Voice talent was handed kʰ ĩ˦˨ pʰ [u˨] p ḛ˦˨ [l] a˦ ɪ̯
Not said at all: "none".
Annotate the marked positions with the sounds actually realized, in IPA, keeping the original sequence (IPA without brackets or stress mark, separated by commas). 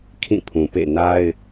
ũ˨, n